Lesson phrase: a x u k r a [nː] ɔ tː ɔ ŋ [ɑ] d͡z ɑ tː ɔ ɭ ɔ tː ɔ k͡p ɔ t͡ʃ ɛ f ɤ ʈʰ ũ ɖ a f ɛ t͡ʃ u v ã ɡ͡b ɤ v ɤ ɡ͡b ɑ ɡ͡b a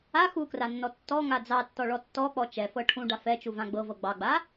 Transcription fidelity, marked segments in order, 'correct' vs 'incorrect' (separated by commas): correct, incorrect